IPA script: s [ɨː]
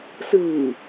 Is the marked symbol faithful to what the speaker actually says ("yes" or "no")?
yes